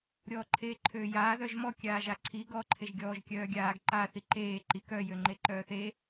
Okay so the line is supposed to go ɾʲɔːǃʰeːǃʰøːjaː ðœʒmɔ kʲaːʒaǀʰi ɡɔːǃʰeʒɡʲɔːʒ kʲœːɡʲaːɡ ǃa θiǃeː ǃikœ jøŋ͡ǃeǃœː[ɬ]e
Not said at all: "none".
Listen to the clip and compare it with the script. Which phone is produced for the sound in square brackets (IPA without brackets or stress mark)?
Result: θ